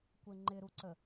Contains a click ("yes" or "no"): yes